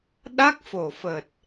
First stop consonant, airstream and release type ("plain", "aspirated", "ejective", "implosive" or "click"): implosive